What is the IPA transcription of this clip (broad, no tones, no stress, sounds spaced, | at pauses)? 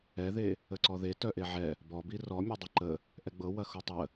ɛ ð e | ə ǀ ɔ ð e t œ ʔ e ʕ ɛ | b ɔ b i r ɔ mʲ ɵ dˤ ə ǃ ə | ʔ ɛ ɡ͡b ɤ w ɐ x o tˤ ə